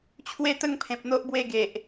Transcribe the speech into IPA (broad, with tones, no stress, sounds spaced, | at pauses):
t͡ɕʰ w e˥˧ t̪ ə˥˧ ŋ pʰ ẽ˨ p̚ n̪ o˦ ʔ b w e˥˧ ɡ e˨ ʔ